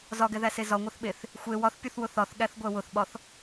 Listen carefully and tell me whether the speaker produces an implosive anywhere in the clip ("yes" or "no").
yes